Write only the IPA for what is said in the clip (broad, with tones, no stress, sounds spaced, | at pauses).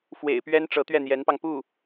f w ḛ˨˩ ɪ̯ p ɥ ɛ˥ n ʈ͡ʂ ɤ˧˥ t̪ ɥ ɛ˥˩ n̪ j ɛ˧˥ n p ɑ˧ ŋ p u˥˩